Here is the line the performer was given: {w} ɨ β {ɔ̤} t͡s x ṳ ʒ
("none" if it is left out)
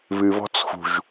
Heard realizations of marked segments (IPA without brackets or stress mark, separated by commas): β, ɔ̤